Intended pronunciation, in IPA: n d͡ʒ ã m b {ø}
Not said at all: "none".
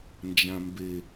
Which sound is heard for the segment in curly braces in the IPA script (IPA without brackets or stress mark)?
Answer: e